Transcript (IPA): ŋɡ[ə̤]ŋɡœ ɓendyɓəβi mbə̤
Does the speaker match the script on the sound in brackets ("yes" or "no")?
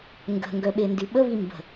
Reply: yes